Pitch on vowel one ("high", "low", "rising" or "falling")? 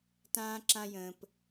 high